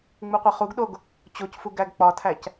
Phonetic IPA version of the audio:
ŋ͡m u qʷ e χ u ɡ ɗ o ɡ | t͡ɕ o c f u ɡ æ ɡ k͡p ɒ tʰ æ c

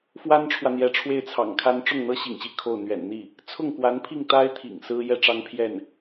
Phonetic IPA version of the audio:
f w a˥ n ʈ͡ʂʰ w ä˨ n̪ j ɛ˧˥ ʈ͡ʂʰ w e˥˩ ɪ̯ t͡sʰ ɑ̰˨˩ ŋ kʰ a˥ n ʈ͡ʂ ʊ˥˩ ŋ n̪ ɤ˥ ɕ ḭ˨˩ ŋ ɕ i˧˥ kʰ o˥˩ ʊ̯ n̪ ɥ ɛ̰˨˩ n n̪ i˥˩ | t͡sʰ ʊ˥˩ ŋ k w a˧˥ n pʰ i˥˩ ŋ t̪ a˥ ɪ̯ t̪ʰ ḭ˨˩ ŋ s ɹ̩˥ j ɛ˥ ʈ͡ʂ ɑ˥ ŋ pʰ j ɛ˥˩ n

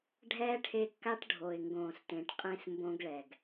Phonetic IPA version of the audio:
ɖʱ ɛː˦ ʈʰ e˧ kː a˦ ʈ ɖʱ o˨ ɪ̯ ŋ ɡ õː˨ s t ẽ˨ ʈ qʼ ẽ˧ s m b õ˧ ɡ ɭ ɛ˨ ɡ

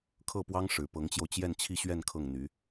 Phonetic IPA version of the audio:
kʰ ɤ˥˩ p w ɑ˥ ŋ ʂ ɻ̩˧˥ p ɤ˧˥ ŋ t͡ɕ j o˧ ʊ̯ t͡ɕ j ɛ˥˧ n t͡ɕʰ i˥˧ ɕ ɥ ɛ˥˧ n kʰ ɤ˥˩ ŋ n̪ y˧˥

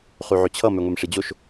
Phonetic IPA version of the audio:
χ y ʕ ø t͡ɕʰ ʌ m ø ŋʷ e m ʂ i d͡ʑ o ʃ

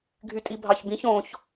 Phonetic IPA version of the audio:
ɡʱ y tʼ i bʱ ɑ ç b ĩ ç õ ç

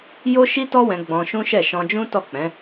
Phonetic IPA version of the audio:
j o˦ ʃ i˦ t ɔ˦ w ɛ̃˧ ɡ͡b ɔ̃˧ ʃ ũ˦ ʃ ɛ˦˨ ʃ ɔ̃˧ d͡ʒ ũ˦ t ɔ˦˨ k͡p ɛ̃˨˦

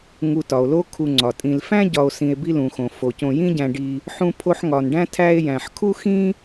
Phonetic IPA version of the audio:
ŋ u˨ t ɒ˩ o̯ l o˦ kʰ u˨ ŋ͡ǀ ɒ˩ tʼ ĩ˨ l f æ̃˥ ɟ ɒ˨ o̯ s ĩ˨ e̯ b i˦ l ũ˩ x õ˩ f o˩ c õ˨ j ĩ˦ ɟ æ̃˨ ɖ i˨ | ħ ũ˦ pʰ o˦ ħ ŋ ɒ˨ n ɖ æ̃˥ tʰ æ˦ e̯ j æ̃˨ ħ kʰ u˥ x ĩ˥

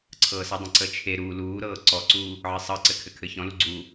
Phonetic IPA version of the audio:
ǀʰ ɤː s ə dˤ ə̃ ǀ ə t͡ʃʰ e ɾ uː l uː ɾ ɤː ǀ ɔ ǀ uː | ʕ ɘ sˤ ɤ ǀ ɘ kʰ ɘ kʰ ɘ ç ɔ̃ l u ɡ͡ǀ uː

